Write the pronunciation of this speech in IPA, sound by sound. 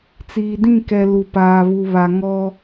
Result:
t͡s iː˨ d ĩ˦˨ k ɛ˨ l u˨ p aː˨ β u˨ β a˨ ŋ ɔ˦

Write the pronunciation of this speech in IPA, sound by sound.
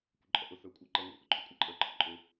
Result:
kʷ ə ǃʼ ɔ̰ ʔ ʊ θ ə˞ kʷʼ æ ǃ ʌ ŋʷ ḭ ʔ ʊ ǃʰ ʊ kʷʼ æ ǃʼ ə˞ ǃʰ ʌ ǃʼ ʊ

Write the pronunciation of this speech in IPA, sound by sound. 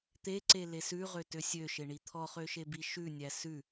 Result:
t̪ e ǀ e l e s ʉ ʁ ø t ø sʲ ø ʃ e ɳ i t̪ʰ ɔ χ ø ʃ e b i ʃ ʉ nʲ æ s ʉ

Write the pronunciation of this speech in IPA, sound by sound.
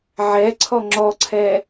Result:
ʕ ɛ ǀʰ ɔ ŋ͡ǁ ɔ ǀʰ ɛ

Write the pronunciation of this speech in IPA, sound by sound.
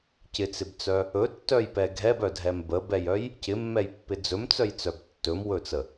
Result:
c ɪ t͡s ɪ b t͡s œ | ɵ tː œ j p ɛ ɡʱ ɛ b œ dʱ ɛ m b ə b ɛ j œ j | c ɪ mː ɛ j pː ɪ d͡z ɵ m t͡s œ j t͡s œ b tː ɵ m w ɵ t͡s ə

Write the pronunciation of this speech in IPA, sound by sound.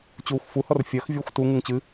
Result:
t͡ɕ uː xʷ f u h ɔ r fʲ ɜ x vʲ ɔ xʷ t u ŋ u ŋ t͡ɕ ɨ

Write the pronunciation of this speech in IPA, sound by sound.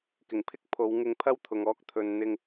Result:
k ɪ˨˩ ŋ pʰ ɪ˥ k̚ pʰ o˨˧ w ŋ ɪ˧ ŋ pʰ ɐ˥ w t̪ʰ ʊ˨ ŋ ɔː˧ k̚ t̪ʰ ɵ˨ n n̪ ɪ˧ ŋ

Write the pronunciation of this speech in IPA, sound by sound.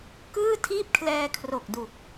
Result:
k ɯː˥˩ tʰ iː˥˩ p̚ kʰ l ɛː˧ kʰ r o˨˩ k̚ d u˨˩ k̚

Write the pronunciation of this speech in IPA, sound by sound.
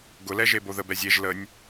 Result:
ɡ ʊ l ɛ ʒ e b o ð ə b ɛ zʲ e ʒ l ə nʲ

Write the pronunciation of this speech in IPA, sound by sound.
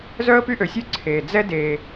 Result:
z œ˥ ə̯ p y˥ ʔ ø˧ sʲ ø˥ ǀʰ eː˧ d͡z ɛ˥ d eː˧

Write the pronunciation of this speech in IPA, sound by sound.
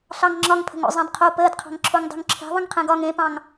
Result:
ɬ ɑ ŋ ŋ͡ǁ ɒ ŋ pʰ ə̤ ŋ o̰ zˤ ɑ̃ d qʰ o p əː d qʰ ɑ̤ ŋ ǁʰ o ŋ dˤ ṳ ŋ ǁʰ e̤ ðˤ ə̃ ŋ qʰ ẽ ɡ ɒ ŋ ẽ p ɑ̃ ŋ

